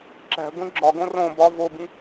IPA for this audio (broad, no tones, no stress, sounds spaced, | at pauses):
ǁ æ̤ ɡʷ ĩ ɡ͡ǁ ɒ ɡ õ r õ b ɒ v o b ĩ